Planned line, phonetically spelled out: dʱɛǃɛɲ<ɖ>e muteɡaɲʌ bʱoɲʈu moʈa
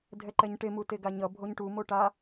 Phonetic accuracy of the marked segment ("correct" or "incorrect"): incorrect